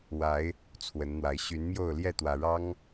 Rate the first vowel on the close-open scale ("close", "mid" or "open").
open